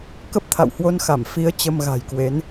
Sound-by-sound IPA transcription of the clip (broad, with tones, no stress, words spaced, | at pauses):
kə˦˥p̚t̪ʰa̰˧˨whwo˧nxa˧˩m fi˨˦ə̯ t͡ɕə˧mɣa̤˨˩jkwe˨˦n